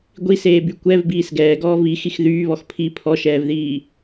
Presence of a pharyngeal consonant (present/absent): absent